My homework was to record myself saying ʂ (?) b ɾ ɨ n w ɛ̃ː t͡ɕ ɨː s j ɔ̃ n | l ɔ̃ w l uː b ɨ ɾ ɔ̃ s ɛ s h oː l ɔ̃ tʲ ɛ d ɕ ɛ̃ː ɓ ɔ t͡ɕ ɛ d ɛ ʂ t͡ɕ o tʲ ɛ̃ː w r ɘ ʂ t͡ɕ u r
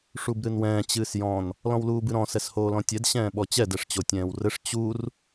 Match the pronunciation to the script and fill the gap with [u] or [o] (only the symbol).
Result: u